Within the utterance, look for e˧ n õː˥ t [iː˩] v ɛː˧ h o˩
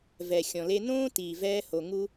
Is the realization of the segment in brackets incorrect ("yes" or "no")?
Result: no